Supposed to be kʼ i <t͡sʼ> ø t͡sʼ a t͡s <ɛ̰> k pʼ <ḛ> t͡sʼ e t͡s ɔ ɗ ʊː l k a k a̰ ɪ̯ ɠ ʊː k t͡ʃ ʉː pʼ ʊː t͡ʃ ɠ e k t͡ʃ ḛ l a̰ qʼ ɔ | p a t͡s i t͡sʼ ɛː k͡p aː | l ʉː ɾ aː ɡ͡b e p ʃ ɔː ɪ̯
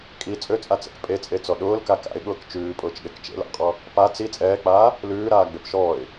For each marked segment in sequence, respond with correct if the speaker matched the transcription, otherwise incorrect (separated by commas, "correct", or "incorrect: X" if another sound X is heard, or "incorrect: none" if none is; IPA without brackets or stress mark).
correct, correct, incorrect: e